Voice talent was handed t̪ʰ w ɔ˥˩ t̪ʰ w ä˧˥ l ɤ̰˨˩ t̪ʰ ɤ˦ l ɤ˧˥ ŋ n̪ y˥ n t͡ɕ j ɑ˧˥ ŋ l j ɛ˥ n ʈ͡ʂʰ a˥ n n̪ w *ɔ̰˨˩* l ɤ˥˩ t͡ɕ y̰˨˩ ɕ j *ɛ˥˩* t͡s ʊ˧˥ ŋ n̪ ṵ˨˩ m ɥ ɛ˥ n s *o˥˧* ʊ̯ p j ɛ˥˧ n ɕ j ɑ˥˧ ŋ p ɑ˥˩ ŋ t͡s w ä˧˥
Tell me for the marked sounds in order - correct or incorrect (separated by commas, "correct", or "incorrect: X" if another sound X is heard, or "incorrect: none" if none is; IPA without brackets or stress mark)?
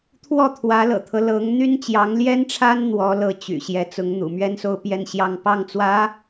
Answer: incorrect: ɔ˧˥, incorrect: ɛ˧˥, incorrect: o˥